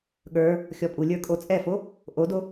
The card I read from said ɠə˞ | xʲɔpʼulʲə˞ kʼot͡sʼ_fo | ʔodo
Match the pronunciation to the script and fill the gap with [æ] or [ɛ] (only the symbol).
ɛ